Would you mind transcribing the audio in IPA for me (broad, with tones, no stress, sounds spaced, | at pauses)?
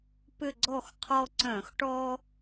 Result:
p ʏ˦˨ ɡ͡ǀ ɔ˦˨ x qʰ ɔ˦ ǀ œ̃˧˩˧ x ʈ ɔ˦